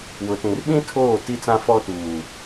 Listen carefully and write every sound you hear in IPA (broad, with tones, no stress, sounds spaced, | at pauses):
w ʊ˨ t ĩ˨ r ɓ ĩ˦ tʰ oː˦˨ t i˦ t͡s ã˦ f ɔ˦ t uː˨